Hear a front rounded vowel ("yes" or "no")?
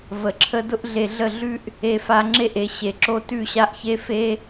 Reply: no